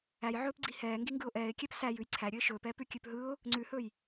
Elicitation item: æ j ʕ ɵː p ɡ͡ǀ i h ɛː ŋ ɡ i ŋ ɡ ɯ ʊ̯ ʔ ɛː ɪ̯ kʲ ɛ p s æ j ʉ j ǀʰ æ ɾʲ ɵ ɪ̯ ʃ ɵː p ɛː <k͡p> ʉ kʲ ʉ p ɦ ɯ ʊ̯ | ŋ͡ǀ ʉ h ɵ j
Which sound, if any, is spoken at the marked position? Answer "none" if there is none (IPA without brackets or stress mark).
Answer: p